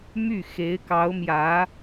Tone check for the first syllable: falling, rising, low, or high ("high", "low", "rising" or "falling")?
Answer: falling